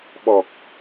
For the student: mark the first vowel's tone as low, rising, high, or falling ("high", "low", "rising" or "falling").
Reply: low